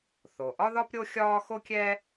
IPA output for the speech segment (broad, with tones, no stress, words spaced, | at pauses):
θo˩ʔɒ˥ðɒ˥p ɾʲo˥xʲɒː˥ xo˥kʲɛ˥